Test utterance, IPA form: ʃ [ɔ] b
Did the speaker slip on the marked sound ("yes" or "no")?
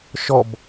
no